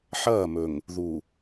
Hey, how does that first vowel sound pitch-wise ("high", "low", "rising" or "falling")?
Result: falling